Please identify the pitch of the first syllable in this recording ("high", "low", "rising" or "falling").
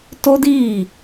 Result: high